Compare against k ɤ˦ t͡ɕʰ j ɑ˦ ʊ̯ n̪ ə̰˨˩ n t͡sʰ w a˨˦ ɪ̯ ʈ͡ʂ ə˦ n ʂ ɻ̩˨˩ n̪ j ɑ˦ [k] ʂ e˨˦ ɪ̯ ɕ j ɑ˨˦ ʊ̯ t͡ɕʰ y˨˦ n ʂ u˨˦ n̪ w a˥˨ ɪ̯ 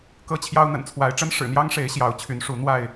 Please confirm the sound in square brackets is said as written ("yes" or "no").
no